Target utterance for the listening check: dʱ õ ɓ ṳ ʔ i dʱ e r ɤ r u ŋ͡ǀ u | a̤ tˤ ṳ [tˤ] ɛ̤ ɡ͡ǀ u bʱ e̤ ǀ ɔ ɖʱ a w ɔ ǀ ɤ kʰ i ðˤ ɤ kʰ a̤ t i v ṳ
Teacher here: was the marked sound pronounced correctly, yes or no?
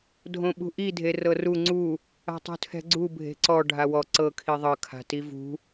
no